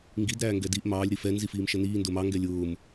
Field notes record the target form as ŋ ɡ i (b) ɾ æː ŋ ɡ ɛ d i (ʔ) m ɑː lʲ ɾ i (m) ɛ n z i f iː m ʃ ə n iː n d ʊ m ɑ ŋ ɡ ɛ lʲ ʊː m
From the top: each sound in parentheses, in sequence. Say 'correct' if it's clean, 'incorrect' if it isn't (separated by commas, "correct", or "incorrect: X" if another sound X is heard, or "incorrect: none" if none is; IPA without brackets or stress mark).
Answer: incorrect: d, correct, incorrect: f